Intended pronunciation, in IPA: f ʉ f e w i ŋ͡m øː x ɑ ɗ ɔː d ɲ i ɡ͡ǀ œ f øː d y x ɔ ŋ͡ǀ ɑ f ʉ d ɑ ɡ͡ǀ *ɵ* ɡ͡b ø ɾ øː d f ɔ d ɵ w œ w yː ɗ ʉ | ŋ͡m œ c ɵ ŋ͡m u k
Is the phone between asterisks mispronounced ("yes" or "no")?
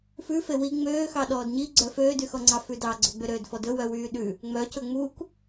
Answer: no